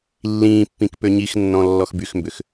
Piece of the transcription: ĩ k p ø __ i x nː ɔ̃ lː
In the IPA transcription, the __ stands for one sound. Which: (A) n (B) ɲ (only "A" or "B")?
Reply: B